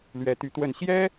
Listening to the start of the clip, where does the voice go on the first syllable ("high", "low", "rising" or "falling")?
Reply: rising